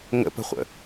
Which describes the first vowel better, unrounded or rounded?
unrounded